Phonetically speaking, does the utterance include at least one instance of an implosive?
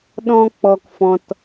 yes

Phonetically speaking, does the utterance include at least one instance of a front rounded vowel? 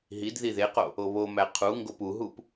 no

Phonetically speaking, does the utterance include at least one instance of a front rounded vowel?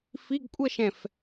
no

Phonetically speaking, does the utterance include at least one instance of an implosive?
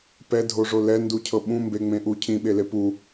yes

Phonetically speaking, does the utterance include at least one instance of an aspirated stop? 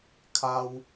yes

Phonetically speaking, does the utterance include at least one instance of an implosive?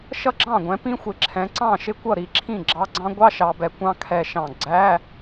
no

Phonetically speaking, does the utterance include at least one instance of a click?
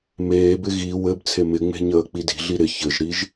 no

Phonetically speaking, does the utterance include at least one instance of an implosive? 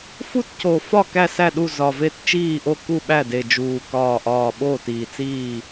yes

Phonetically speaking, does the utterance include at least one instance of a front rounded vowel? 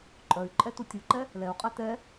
yes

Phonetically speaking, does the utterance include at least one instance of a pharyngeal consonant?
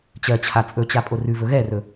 no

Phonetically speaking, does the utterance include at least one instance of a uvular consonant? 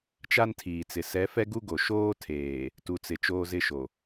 no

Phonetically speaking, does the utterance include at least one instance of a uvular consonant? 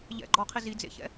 yes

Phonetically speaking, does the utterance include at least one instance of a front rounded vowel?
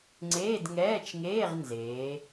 no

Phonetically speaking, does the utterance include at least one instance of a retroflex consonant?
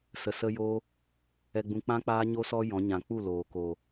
no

